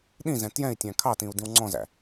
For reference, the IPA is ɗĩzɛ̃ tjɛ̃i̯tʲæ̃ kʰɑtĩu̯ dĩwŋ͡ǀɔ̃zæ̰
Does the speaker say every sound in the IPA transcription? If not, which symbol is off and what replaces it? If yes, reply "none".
none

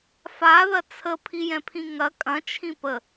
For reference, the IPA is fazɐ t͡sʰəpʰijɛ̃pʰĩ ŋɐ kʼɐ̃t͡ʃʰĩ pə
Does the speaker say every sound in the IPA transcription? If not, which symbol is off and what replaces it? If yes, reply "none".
z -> ð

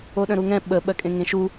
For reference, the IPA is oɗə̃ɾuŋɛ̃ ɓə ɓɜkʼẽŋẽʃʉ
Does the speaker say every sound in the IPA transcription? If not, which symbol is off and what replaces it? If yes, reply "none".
ʉ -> u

